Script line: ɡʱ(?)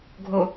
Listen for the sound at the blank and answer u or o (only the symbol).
o